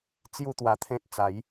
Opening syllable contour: falling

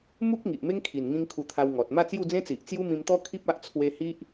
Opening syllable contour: high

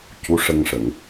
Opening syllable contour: rising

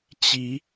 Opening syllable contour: rising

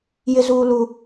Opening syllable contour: high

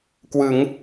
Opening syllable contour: rising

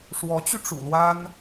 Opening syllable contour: rising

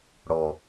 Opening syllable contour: low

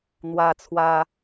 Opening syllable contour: high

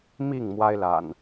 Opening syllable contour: falling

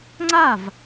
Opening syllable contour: falling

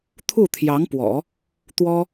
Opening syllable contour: falling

